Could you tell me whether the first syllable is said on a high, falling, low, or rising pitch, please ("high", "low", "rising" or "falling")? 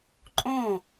falling